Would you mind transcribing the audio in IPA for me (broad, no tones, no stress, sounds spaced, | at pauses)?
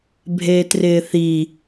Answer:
bʱ eː t r ɪː θ i